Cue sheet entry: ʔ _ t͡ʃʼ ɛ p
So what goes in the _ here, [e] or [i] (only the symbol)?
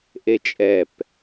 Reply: e